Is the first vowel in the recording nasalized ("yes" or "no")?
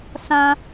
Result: yes